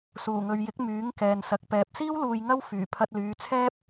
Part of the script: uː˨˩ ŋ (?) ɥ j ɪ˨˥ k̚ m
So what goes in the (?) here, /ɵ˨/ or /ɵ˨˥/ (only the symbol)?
ɵ˨